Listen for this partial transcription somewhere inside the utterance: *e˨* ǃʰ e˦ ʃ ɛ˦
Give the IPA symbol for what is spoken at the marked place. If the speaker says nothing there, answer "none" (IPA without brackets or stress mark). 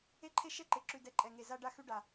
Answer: e˦